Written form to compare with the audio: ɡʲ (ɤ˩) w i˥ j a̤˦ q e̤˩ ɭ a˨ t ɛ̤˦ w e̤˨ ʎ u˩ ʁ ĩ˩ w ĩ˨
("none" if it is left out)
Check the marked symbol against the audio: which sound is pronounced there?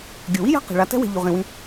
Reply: o˩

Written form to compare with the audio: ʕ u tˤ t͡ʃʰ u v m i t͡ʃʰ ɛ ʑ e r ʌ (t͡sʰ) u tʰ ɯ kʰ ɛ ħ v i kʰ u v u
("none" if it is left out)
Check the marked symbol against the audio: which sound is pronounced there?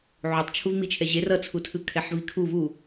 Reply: t͡sʰ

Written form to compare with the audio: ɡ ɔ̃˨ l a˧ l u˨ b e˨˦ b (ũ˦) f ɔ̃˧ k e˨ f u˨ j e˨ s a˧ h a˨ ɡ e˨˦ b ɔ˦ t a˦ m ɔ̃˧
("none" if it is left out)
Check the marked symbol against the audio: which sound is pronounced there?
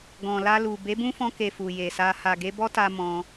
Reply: ũ˦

